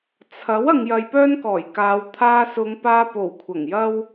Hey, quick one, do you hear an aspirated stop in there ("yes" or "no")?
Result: yes